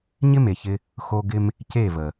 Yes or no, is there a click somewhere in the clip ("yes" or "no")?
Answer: no